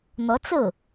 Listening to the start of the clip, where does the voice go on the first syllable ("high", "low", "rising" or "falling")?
rising